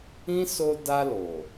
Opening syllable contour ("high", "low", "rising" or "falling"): high